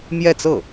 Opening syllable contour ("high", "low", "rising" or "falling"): falling